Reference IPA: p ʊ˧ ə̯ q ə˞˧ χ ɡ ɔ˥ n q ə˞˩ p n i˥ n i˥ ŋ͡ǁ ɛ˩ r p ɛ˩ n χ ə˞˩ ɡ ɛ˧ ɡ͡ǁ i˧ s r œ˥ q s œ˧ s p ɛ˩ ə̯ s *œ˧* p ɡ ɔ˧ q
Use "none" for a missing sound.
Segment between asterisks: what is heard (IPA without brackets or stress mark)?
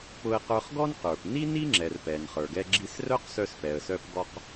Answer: œ˧